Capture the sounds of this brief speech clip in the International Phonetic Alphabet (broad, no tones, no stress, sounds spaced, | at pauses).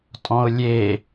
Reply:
tʼ ɔ̃ ʊ̯ lʲ e